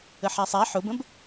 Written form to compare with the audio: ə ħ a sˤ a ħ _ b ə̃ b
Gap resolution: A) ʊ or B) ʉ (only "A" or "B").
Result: A